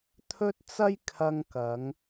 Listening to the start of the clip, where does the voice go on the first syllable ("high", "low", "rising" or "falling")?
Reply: high